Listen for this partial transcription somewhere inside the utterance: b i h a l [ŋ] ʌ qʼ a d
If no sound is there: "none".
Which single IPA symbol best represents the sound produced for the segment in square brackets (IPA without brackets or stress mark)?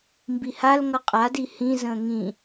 ŋ